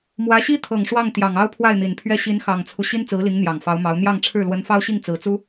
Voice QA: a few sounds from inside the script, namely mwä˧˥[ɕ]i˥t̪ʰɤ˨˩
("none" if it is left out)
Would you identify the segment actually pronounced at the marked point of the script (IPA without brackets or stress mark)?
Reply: ɕ